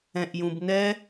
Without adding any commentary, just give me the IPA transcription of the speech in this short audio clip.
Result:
ɛ̃ ʔ j ũ b n ɛ

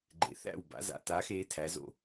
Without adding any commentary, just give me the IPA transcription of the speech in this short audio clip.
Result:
ɡ͡ǃ ḛ˩˧ θ æ̰˥˩ w b a̰˩˧ z a̰˩˧ t aː˩˧ x eː˩˧ tʰ æ˩˧ z o̰˥˩

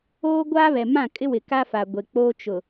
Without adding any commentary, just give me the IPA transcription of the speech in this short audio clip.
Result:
oː˦ ɡʷ a˦ β ɛ˨ m ã˦˨ kʼ ɪ˦ w ɪ˨ k a˦ f a˨ ɡʷ e˨ k͡p oː˦ t͡ʃ ʊ˨

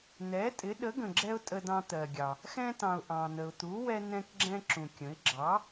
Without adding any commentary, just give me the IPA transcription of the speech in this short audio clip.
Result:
n̪ ɛ˨˥ tʼ ɪ˨˥ ɗ ə˨˥ ɡ ə̃˨ ɡ͡ǁ ɛ˦ ʊ̯ tʼ ə˦ d ɑ̃˦ t̪ ɜ˨ ɡʲ ɑ˨ | x ɛ̃˦ t ɑ̃˨ ʊ̯ ʔ ɑ̃˨ n̪ ə˨ ʊ̯ t̪ u˨˥ w ɛ˦ n̪ ɛ̃˦ k ɡ͡ǁ ɛ̃˦ ǁ ũ˨ kʲ ə̃˨˥ ɪ̯ ɡ͡ǁ ɑ˨˥

